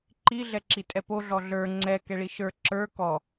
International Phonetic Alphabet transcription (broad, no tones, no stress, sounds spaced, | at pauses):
ǃ i ɮ ɛ ǁ i tʼ ɛ p o ɮ ɔ ɮ ə˞ ŋ͡ǀ ɛ k ɛ ɭ i ʃ ə˞ ǁ ə˞ k ɔ